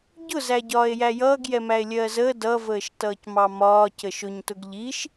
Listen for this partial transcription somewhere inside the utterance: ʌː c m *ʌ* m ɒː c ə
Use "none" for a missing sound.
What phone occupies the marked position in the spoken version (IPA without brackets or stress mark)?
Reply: ɑ